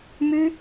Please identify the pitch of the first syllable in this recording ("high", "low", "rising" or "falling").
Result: high